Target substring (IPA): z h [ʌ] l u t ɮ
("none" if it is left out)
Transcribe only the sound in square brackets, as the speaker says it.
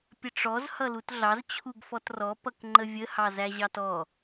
ʌ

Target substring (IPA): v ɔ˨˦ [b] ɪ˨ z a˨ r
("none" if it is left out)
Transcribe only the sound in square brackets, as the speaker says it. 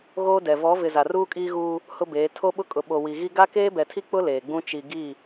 v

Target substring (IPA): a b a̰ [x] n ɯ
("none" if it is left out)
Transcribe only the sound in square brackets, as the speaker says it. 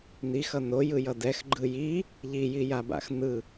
x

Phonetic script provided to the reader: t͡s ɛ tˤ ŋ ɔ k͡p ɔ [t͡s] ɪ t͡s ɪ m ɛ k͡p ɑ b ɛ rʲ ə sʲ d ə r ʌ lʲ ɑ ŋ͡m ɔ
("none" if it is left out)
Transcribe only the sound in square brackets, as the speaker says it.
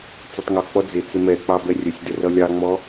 d͡z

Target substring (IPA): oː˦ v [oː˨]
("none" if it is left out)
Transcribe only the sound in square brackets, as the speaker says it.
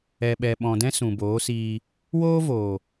oː˨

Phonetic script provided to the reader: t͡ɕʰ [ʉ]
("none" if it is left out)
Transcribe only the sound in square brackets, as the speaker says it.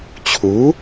u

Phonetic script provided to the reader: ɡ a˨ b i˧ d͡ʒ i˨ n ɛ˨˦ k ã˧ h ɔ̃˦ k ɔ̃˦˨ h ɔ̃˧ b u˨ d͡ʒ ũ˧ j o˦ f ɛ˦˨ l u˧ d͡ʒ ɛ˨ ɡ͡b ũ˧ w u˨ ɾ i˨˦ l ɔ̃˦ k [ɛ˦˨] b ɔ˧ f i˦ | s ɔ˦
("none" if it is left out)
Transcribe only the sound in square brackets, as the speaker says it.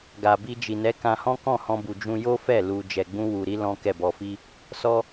ɛ˦˨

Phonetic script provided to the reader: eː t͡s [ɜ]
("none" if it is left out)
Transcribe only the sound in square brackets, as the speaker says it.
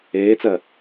ɜ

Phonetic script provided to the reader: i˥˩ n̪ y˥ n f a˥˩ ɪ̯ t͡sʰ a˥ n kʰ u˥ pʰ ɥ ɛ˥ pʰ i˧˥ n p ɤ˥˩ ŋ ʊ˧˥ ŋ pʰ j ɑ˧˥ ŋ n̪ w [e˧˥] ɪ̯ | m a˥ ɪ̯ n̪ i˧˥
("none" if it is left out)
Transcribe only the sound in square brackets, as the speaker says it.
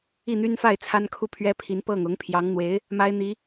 e˧˥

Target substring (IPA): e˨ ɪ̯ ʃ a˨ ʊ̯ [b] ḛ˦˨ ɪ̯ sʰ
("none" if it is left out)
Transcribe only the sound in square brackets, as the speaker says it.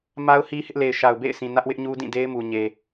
b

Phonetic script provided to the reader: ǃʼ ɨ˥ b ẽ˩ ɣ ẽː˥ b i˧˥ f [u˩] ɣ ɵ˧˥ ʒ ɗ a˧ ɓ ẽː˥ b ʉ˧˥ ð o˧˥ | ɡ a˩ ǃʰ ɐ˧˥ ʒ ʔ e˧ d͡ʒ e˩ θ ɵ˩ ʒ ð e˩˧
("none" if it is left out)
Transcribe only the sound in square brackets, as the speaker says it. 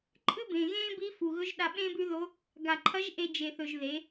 u˩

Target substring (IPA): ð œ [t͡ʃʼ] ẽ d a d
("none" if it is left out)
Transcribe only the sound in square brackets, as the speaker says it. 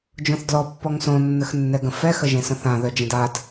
d͡ʒ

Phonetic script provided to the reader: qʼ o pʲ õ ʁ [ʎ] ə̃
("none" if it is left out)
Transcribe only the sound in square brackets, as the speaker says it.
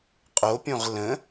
l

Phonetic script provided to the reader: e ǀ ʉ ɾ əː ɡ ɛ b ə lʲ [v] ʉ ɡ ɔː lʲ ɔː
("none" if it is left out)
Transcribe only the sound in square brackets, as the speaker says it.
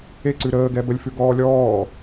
f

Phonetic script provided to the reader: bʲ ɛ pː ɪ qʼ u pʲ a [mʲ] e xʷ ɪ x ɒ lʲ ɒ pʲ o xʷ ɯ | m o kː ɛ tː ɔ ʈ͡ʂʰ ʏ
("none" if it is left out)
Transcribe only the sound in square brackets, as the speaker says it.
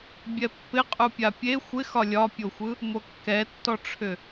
pʲ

